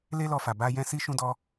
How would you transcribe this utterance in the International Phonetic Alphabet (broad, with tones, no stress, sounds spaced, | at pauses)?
l e˦ l ɔ˧ f a˨ b a˧ j ɛ̃˦ s i˦ ʃ ũ˦ d ɔ˦